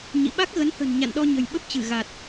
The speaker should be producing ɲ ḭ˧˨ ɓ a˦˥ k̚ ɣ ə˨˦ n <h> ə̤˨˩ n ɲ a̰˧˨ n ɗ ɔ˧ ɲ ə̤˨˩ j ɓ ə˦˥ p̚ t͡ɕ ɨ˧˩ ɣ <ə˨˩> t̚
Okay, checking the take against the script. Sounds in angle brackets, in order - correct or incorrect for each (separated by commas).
correct, incorrect